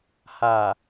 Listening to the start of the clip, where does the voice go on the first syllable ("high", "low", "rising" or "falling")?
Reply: low